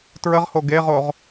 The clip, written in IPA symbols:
tɹəʁho ɡeʁoʁ

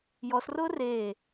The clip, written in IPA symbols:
jɔsrʊː reː

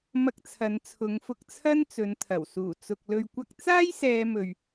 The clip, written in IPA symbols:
mɐ˧k̚ t͡sʰɐ˨˧nt͡sʰʊ˨˧ŋfʊ˧k̚ t͡sʰɐ˥nt͡sɵ˨˧nt̪ʰɐ˨˩w suː˨˩t͡sʊ˨k̚ lɵ˨ɥkʷɐ˧k̚t͡saː˥j sɛː˧mɵ˨ɥ

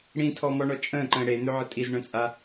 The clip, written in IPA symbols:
ɽĩtʰɔmɔɳɔ t͡ʃʼə̃ːǃə̃ː ɽen̪øʕə tʼizɳœ̃t͡sʼa

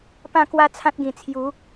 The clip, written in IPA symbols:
pã˥˧kwa˦t͡sʰã˦t̚ɡĩ˨˩ t͡sʰju˨˦

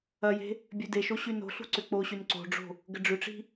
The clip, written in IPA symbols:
ɐje̤ | bʲødeʃo ɕyno̤ɬṳ ǀʏk͡poɕyn ǀo̤ɖ͡ʐo̤ | ɡəɖ͡ʐʏʈ͡ʂi̤

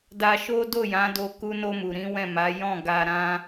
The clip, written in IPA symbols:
da˧ʃo˦ do˦˨jã˨˦do˧ ku˧no˧mu˨ɾĩ˨˦ wɛ̃˦˨ma˨˦ jɔ̃˦˨ɡa˧ ɾã˦

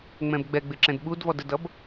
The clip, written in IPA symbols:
ŋ͡mɛ̃bɡ͡bɛɡ͡bɪ ǁɛ̃dɓudvɔd ədʌb

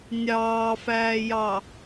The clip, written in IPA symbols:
nʲɑːfæːjɑ

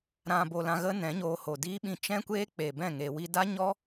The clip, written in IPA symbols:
ɾã˨bo˨ lã˧ɣə˦nɛ̃˨˦ɲoː˧ ho˨diː˦ɓĩ˧ t͡ʃɛ̃˦kʷeː˦ k͡pe˨bɛ̃˦˨ ŋe˧wi˦ da˦ɲɔ˦

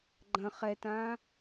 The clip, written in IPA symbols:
ɡ͡ǃɐ̃ χɛtã

